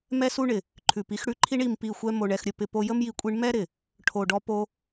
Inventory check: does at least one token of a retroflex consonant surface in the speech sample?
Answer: yes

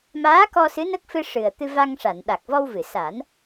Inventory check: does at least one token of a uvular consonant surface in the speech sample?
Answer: no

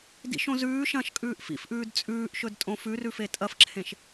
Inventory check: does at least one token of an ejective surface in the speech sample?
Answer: yes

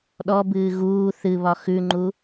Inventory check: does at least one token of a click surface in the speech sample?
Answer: yes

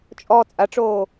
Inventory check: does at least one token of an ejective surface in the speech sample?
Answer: yes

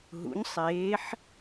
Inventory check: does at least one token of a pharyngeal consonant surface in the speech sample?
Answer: yes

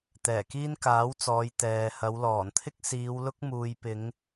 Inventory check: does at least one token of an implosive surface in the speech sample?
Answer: no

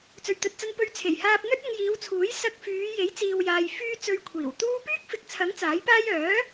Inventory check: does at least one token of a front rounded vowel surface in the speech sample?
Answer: yes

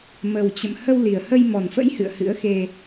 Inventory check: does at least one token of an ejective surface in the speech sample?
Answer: no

